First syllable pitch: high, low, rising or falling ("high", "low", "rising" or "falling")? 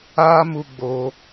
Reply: high